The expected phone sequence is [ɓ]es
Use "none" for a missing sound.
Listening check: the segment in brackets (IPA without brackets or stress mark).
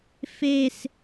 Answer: f